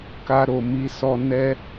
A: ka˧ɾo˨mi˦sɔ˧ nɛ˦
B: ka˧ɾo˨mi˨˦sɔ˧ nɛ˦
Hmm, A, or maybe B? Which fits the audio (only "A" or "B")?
B